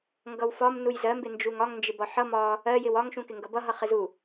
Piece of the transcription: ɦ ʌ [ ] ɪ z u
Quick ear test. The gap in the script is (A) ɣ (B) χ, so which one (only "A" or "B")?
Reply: B